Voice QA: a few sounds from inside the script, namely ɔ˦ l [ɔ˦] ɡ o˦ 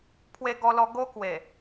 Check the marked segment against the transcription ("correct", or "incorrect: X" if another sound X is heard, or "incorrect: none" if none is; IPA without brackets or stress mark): correct